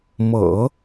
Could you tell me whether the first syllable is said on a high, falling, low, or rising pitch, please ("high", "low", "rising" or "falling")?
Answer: low